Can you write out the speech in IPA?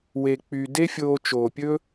w e˨ k͡p y˨ d e˦ fʲ oː˧ t͡ʃ oː˨ pʲ ɵ˦

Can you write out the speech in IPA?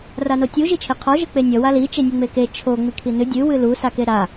r a n o tʲ u ʒ i t͡ʃʰ e qʰ ɔ ʒ ɘ k͡p e nʲ ʌ w a l i t͡ʃ e nʲ u ŋ͡m e k e t͡ʃʰ o ŋ͡m i kʰ i n ɨ dʲ ɨ w ɨ l u s a k e ɾ a

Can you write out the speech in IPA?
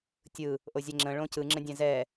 tʲ ɯ | ʔ o zʲ ɛ ŋ͡ǁ ə̃ ɭ õ c ɯ ŋ͡ǁ ə̃ dʲ ɛ̃ z ɛ

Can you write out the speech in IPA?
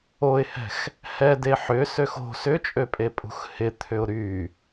o ɪ̯ h ɛ̤ x | h ɛ d e ħ ʏ s ø x o̤ s ʏ t͡ʃʼ ø pʼ e pʼ ṳ x h ɪ t̪ʰ ʏ ʊ̯ ɾ y

